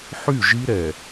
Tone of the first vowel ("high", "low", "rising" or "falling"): falling